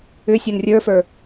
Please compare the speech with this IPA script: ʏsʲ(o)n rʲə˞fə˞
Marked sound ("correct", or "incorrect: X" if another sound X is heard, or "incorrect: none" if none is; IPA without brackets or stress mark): correct